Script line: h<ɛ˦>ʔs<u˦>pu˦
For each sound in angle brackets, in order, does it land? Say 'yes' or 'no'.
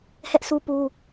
yes, yes

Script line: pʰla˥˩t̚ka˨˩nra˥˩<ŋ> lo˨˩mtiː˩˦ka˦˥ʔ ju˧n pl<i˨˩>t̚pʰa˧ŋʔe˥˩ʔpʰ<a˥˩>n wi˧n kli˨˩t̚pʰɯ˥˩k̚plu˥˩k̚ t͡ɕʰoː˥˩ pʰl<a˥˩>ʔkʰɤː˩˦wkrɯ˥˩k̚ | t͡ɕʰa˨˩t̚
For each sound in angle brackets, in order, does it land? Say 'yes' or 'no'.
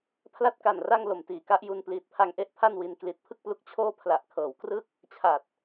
yes, no, yes, no

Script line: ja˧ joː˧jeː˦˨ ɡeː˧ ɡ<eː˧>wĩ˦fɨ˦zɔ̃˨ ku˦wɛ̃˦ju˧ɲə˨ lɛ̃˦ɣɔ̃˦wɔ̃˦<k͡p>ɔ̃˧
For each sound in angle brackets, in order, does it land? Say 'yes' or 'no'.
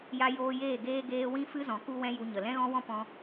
yes, no

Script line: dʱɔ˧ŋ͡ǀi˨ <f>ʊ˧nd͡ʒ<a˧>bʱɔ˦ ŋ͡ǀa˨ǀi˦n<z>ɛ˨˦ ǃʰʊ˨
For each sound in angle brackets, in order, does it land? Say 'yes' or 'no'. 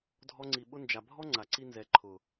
no, no, yes

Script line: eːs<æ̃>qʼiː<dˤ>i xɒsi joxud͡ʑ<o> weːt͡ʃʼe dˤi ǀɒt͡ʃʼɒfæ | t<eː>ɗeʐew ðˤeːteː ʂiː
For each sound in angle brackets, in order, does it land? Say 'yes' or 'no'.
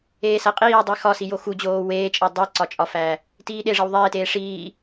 no, yes, no, no

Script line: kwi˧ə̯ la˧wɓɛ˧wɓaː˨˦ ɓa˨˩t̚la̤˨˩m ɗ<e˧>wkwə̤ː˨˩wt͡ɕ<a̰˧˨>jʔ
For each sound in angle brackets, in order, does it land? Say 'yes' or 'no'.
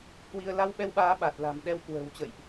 no, no

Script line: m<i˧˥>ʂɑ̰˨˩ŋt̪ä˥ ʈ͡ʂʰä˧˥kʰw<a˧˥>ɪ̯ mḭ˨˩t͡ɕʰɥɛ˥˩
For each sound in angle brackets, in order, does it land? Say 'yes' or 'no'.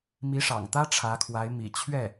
yes, yes

